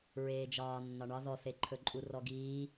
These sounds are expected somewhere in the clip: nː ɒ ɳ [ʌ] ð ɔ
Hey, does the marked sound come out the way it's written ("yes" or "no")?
no